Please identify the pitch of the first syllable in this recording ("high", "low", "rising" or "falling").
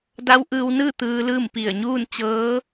rising